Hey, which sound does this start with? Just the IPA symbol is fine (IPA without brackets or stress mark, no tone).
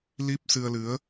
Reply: l